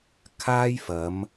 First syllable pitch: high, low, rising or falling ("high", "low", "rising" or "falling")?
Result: high